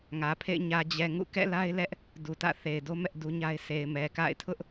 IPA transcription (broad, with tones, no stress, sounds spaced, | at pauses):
ŋ ä˨ pʰ ḛ˦˨ ɪ̯ ɲ ä˨ d͡ʑ ɛ˨ ŋ ṵ˦˨ k ɛ̰˦˨ l a˦ ɪ̯ l ɛ˦ ʔ | d u˨ t ä̰˦˨ θ e˨ ɪ̯ d o˦ m ɛ˦ ʔ d u˦ ɲ a˦ ɪ̯ s e˨ ɪ̯ m ɛ˨ k a̰˦˨ ɪ̯ tʰ ʊ˦ ʔ